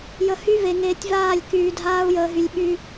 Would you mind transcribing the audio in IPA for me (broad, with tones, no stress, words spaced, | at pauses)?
jə˨ hy˦ve˨ŋeː˨tʲ vaː˦˨lʲkyː˨ dʱaː˦u̯jəː˨ɦy˨lʲɓy˦